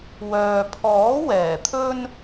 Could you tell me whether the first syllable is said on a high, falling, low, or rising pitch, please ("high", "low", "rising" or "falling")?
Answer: low